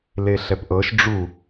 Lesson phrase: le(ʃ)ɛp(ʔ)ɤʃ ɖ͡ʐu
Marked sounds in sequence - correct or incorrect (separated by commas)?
incorrect, correct